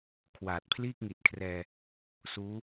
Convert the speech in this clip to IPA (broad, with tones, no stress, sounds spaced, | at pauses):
kʰ w aː˨˩ t̚ pʰ l iː˥˩ k̚ ŋ i˨˩ t̚ kʰ r ɛː˧ | s uː˦˥